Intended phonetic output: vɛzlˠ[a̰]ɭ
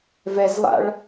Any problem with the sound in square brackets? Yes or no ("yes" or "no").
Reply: no